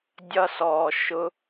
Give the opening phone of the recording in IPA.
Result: dʲ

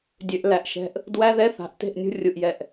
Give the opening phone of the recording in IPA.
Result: dʲ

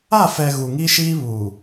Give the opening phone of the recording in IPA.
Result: a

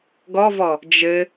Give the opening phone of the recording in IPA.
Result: ɡ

